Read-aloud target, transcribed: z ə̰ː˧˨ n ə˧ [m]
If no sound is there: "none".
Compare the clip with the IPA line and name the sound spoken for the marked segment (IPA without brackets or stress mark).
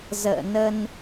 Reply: n